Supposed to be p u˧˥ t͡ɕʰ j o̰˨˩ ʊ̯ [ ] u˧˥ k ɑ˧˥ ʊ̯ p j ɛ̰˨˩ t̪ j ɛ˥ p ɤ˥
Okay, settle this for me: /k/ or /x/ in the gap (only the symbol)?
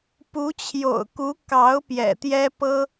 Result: k